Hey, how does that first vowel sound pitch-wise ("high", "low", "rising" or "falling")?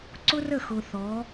high